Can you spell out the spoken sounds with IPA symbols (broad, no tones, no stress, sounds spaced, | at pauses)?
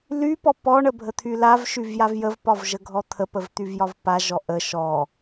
l y p ɔ p ɔ ɳ ə bʱ ə t̪ʰ y l a v ʃ y v j a v j ə v p ɒ v ʒ ə ɡʱ ɔ t̪ʰ ə p ə v t̪ y v j ɒ v p a ʒ ɔ ʔ ə ʃ ɔ